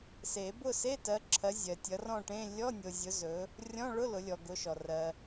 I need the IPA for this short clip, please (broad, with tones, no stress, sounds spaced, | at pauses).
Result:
s e˨˩˦ b ʊ˥˨ s e˧˥˧ t ɜ˨˦ ǁʰ ɜ˨˦ zʲ ɜ˨ tʲ ʌ˨˦ r ɔ̃˥˨ ʈ ẽ˧˥˧ lʲ ɔ˧˥˧ nʲ o˨ zʲ ʊ˨˦ z ɵ˨˦ | rʲ ɔ̃˧˥˧ ɭ ʊ˧˥˧ l ʊ˨˦ lʲ ɔ˨ ɡ ʊ˨˦ ʃ ɔ˨ r ɜ˨